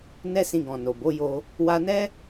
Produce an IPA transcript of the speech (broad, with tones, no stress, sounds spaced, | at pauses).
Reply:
n ɛ˦ s ĩ˧ ɡ ɔ̃˨ n o˨ b o˨˦ j o˧ | w a˧ n ɛ˦